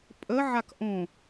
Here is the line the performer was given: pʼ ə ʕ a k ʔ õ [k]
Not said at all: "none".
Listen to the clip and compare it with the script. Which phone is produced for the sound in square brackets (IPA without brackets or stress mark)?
none